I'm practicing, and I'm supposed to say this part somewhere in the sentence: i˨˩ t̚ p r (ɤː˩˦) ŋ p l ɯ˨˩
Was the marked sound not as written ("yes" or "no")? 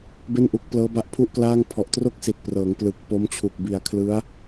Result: no